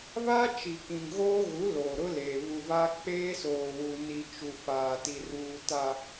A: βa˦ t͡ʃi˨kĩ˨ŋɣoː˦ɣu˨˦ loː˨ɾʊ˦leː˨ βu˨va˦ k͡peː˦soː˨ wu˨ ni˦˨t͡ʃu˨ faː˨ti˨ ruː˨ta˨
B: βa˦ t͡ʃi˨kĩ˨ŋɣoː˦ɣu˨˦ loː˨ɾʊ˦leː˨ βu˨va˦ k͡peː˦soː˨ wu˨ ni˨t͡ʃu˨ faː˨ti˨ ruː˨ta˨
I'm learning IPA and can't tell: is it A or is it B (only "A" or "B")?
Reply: B